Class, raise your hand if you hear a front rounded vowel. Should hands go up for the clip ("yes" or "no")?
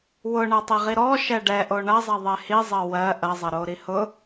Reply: no